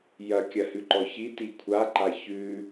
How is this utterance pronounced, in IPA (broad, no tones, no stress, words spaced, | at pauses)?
jɐkʲɐhʉǃɔ çi tikʷʰaǃa çʉ